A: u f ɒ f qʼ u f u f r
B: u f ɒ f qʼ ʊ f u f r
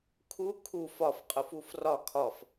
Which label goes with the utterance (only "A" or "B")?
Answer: B